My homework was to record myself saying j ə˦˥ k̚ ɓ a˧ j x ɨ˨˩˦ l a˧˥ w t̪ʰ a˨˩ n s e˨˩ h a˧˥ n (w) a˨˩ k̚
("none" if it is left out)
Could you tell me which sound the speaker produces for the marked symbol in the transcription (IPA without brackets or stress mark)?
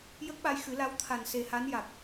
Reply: j